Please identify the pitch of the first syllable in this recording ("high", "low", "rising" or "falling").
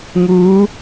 rising